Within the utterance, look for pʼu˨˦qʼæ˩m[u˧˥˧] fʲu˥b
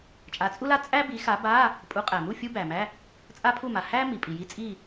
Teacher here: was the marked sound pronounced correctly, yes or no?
no